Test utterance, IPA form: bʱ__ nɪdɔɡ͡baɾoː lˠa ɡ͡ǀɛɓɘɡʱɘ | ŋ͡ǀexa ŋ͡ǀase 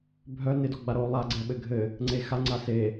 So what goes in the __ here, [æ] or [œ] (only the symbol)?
œ